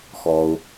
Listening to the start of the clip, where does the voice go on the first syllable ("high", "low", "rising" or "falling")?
low